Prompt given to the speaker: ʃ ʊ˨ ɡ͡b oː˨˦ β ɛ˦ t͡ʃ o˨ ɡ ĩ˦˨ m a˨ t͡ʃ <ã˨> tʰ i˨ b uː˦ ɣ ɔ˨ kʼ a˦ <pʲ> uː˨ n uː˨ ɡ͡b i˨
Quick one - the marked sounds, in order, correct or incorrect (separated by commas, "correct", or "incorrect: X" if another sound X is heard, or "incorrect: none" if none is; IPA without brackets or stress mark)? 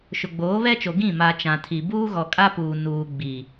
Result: correct, incorrect: p